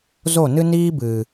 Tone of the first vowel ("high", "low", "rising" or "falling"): falling